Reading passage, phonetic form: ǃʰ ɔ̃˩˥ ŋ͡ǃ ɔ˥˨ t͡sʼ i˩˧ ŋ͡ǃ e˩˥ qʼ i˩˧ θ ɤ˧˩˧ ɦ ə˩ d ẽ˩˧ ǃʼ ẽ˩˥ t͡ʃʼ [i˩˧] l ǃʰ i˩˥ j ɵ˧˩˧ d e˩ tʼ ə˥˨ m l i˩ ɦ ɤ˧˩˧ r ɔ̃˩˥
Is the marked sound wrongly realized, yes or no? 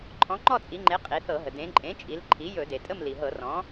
no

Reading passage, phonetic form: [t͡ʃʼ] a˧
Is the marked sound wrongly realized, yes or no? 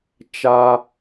yes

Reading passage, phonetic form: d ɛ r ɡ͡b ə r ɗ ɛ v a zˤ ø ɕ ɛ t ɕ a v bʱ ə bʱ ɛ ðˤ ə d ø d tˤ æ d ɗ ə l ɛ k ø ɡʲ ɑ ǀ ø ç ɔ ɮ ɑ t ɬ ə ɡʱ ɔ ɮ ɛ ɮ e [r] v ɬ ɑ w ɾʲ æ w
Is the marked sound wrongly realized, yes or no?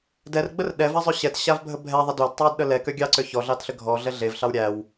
yes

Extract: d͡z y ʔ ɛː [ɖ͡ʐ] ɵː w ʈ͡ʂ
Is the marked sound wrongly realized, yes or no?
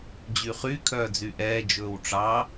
yes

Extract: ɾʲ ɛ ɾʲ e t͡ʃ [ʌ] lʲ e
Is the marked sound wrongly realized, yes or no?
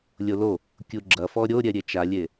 yes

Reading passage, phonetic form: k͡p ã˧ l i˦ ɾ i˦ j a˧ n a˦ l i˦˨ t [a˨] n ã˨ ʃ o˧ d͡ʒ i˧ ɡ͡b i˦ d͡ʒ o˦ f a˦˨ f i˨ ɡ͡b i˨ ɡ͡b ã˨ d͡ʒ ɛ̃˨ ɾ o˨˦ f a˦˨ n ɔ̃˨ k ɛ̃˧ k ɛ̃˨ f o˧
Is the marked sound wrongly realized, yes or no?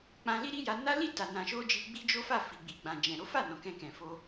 no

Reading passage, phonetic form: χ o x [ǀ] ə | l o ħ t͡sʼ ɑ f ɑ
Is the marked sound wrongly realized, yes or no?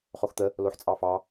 yes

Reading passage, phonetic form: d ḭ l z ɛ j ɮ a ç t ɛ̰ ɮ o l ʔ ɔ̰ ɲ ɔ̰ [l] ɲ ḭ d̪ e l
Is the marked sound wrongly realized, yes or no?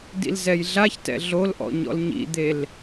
no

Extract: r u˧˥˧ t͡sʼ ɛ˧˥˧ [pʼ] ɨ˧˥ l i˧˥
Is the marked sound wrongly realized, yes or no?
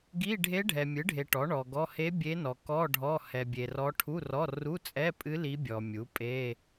no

